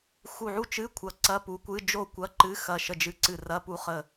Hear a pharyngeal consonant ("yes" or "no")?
yes